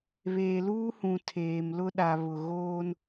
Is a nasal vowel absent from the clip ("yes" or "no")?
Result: no